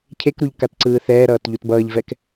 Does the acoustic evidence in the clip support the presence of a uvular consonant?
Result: no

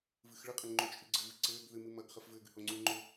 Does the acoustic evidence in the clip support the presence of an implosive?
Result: no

